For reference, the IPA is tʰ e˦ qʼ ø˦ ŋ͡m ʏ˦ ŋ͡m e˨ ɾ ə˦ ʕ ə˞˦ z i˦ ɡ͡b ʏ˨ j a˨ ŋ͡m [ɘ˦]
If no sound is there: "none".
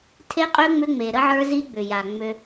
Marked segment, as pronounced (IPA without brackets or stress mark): ø˦